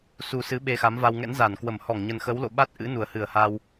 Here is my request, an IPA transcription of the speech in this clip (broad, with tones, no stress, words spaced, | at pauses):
su˨˩ sɨ˨˦ ɓe˧xa˨˦mva˧w ŋɛ̰˧˥nza˧˩nkwə˧˩mhɔ˧˩ŋ ɲə˨˩nxə˨˦w lo̰˧˨ɓa˦˥t̚ʔɨ̰˧˥ nu˧˩ə̯hɨ˧˩ə̯haː˧w